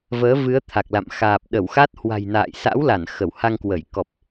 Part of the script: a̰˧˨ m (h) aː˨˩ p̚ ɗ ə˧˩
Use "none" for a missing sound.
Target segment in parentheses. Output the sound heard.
x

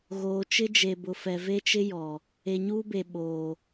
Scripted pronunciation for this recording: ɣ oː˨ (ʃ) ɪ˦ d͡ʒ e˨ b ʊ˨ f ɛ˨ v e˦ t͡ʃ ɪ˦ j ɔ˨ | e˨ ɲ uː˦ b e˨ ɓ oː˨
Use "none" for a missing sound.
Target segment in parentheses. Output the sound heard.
t͡ʃ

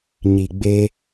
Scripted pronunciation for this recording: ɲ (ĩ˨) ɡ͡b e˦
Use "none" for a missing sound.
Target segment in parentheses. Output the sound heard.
i˨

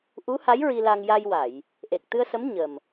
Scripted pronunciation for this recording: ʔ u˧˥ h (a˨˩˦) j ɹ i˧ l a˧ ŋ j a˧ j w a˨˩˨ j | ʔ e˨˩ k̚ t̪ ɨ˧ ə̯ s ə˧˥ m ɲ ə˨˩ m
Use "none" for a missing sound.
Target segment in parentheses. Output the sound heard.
a˧˥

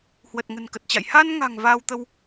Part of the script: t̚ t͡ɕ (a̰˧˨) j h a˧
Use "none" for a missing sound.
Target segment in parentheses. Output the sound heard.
a̰˧˨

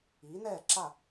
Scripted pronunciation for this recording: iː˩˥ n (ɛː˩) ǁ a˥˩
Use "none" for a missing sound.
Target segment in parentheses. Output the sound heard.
ɛː˥˩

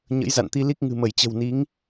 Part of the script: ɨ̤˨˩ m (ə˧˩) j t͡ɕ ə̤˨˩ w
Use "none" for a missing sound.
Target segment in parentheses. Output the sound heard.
ə˧˩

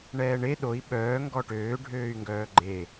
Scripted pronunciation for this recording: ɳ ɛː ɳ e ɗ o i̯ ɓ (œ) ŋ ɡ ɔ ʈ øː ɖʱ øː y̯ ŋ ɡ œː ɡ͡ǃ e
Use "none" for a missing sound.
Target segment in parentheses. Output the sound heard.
œː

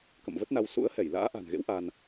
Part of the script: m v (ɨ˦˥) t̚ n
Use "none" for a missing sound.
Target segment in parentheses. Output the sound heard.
ə˦˥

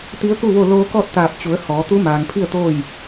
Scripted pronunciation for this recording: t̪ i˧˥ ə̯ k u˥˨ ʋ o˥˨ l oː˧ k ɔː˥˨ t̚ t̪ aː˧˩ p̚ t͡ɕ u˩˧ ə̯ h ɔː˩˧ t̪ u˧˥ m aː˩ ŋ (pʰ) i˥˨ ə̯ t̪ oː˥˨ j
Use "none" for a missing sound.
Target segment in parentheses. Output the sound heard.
pʰ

